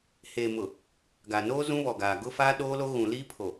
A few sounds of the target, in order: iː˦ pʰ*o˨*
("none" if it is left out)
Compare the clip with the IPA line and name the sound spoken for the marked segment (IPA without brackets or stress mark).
o˨